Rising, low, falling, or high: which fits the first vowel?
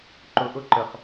low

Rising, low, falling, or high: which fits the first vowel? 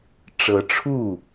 rising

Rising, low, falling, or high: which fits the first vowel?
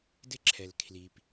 high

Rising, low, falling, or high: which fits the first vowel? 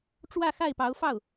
falling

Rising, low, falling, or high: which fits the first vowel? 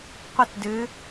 falling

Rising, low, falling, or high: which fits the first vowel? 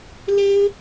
high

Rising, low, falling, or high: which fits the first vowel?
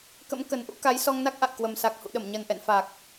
rising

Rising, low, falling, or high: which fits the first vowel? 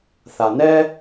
low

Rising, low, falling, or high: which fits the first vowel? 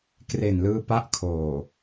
low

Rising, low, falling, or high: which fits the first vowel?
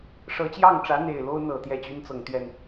rising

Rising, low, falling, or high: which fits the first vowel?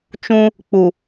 high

